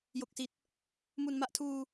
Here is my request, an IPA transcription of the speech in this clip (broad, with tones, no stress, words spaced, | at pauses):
jo˨˩k̚si˨˩t̚ | mu˨˩nma˦˥ʔ tʰuː˧